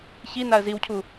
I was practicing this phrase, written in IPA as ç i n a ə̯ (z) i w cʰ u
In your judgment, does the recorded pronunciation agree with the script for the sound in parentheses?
yes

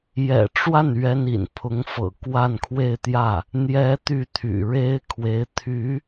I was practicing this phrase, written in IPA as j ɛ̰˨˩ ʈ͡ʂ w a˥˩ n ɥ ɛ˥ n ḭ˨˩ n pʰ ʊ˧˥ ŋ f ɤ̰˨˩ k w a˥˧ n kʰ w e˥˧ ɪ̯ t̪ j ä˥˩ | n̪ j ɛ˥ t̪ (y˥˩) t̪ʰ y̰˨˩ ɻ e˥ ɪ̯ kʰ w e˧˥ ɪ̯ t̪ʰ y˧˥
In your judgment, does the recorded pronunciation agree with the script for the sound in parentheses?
yes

